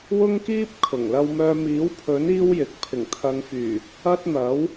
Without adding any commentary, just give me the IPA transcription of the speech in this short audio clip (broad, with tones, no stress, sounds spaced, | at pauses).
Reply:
w ʊ˥ ŋ k iː˥ p̚ kʰ ʊ˨˩ ŋ l ɐ˧ w m œː˧ m iː˨˥ w pʰ ɵ˨˥ n iː˥ w j ɪ˨ k̚ pʰ ɪ˨˩ ŋ t̪ʰ ɐ˨˧ ŋ f yː˨˩ | ɐ˥ t̚ n̪ ɐ˨˥ w